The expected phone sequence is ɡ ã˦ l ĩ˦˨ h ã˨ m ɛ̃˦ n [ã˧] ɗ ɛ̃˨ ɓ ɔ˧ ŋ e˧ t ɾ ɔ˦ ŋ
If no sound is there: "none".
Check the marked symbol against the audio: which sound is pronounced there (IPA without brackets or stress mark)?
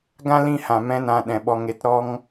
ã˧